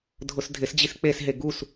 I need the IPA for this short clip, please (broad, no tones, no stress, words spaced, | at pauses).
dʱʊsdʱɪs d͡ʑisk͡pesɦe ɡus